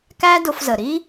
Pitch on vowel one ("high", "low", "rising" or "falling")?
high